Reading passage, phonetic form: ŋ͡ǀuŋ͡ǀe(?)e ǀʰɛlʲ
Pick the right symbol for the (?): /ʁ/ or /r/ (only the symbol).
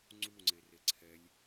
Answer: r